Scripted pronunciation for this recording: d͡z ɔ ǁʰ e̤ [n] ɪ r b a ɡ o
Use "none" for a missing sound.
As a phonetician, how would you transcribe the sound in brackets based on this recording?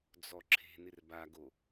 n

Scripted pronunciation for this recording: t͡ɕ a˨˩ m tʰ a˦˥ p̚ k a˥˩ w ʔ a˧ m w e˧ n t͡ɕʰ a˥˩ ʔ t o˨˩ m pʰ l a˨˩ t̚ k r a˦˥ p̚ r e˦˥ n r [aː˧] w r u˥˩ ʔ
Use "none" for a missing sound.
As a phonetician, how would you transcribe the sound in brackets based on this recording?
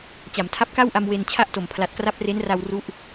a˧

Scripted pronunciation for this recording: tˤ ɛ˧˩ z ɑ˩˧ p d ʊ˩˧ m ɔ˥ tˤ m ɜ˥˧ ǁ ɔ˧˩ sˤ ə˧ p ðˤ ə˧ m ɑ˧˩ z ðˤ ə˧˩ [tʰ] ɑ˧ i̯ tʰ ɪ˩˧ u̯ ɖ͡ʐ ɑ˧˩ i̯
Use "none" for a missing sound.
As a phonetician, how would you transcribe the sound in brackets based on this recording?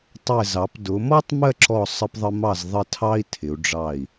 tʰ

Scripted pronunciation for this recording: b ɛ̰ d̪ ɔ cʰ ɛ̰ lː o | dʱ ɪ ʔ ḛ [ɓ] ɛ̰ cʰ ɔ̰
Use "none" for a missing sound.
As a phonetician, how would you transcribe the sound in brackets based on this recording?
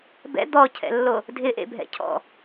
bʱ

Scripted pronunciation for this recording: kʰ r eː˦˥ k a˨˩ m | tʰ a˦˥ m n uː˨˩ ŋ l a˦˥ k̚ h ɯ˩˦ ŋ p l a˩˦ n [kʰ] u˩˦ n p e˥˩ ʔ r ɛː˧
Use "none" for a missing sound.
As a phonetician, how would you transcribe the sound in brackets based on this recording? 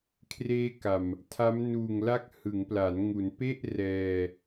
ŋ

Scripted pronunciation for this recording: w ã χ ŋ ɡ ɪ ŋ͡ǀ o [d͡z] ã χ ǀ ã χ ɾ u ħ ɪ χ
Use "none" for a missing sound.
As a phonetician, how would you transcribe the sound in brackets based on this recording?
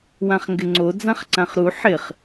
d͡z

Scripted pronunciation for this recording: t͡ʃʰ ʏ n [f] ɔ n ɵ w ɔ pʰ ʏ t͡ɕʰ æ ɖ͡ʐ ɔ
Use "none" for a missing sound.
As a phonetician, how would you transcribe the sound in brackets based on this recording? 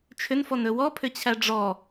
f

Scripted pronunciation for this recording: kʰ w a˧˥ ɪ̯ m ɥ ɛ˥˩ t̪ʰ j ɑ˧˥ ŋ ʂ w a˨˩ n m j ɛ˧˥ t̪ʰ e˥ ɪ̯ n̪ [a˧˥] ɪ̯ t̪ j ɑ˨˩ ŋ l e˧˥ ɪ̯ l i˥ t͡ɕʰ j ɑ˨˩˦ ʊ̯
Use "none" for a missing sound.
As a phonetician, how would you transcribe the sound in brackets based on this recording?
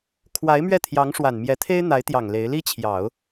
a˧˥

